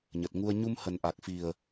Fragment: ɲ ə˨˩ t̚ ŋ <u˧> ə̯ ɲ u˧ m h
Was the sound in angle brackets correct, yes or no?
yes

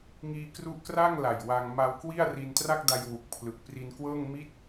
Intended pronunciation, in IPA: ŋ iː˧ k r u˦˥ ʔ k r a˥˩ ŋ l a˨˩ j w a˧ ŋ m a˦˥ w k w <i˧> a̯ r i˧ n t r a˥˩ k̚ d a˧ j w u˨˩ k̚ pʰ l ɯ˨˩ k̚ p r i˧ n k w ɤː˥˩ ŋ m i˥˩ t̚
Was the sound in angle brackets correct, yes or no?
no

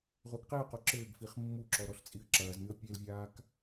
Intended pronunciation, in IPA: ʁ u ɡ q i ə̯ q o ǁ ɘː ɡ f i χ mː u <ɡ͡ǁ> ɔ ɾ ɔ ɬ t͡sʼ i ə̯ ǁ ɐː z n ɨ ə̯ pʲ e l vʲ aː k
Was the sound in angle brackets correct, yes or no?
no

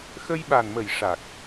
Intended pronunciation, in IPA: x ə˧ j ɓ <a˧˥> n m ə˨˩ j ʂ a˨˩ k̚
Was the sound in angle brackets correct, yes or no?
no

